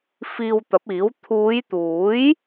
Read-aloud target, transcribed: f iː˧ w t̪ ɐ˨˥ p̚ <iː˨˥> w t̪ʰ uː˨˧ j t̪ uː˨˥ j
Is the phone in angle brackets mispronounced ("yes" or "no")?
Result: no